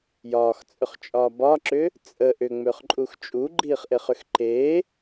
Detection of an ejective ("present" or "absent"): present